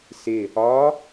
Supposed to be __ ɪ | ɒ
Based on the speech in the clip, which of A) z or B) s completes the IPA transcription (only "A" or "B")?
B